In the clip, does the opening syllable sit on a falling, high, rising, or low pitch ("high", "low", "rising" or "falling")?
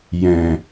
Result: low